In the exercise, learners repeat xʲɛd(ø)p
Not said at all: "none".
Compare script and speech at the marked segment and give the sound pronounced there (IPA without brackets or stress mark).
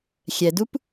u